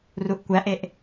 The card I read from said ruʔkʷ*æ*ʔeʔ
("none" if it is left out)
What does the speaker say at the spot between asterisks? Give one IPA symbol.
æ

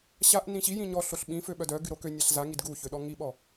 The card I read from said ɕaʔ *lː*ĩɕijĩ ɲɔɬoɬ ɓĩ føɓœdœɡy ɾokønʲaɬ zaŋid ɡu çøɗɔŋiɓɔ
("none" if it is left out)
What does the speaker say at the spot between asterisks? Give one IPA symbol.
n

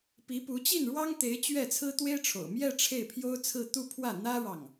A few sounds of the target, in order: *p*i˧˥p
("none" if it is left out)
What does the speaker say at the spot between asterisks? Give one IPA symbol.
p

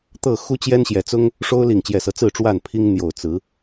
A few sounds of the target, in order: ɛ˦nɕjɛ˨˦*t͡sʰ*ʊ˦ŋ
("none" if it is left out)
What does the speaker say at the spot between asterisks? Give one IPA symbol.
t͡s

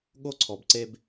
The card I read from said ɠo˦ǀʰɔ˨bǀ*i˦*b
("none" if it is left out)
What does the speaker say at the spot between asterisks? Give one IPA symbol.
e˦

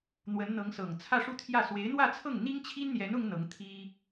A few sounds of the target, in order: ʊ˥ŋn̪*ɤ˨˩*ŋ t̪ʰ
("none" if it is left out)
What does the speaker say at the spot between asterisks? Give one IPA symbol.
ɤ˧˥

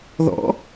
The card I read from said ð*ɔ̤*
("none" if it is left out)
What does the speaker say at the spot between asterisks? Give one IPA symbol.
ɔ̰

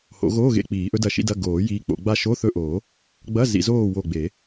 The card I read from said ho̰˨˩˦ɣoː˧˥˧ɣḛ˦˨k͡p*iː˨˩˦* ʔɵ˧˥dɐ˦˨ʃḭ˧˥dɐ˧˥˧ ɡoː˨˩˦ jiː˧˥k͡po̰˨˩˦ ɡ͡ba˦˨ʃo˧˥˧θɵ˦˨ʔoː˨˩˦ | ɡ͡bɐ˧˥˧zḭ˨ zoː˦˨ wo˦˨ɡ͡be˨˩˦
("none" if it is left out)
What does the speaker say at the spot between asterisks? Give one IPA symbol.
iː˨˩˦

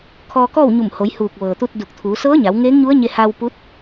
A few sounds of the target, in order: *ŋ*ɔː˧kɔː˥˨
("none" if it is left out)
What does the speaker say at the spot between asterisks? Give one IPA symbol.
kʰ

